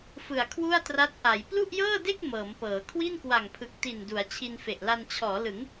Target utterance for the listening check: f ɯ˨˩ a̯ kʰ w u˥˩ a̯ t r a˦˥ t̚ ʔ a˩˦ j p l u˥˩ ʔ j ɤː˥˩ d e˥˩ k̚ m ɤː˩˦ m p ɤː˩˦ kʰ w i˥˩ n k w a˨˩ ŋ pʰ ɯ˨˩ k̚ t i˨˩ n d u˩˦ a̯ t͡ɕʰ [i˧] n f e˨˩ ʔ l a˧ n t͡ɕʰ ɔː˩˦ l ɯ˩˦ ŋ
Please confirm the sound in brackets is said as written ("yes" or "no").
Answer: yes